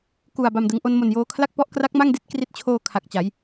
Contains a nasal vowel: no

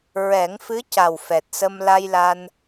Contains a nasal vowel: no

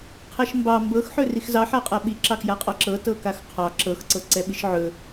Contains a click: yes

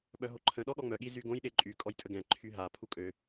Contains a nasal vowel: yes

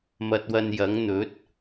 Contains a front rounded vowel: no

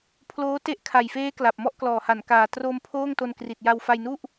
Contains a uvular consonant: no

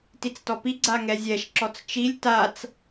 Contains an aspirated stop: no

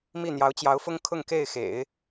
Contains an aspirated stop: yes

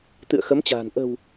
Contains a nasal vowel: no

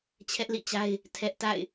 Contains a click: no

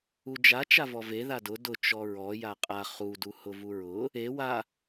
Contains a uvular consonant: yes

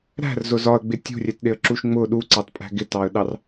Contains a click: yes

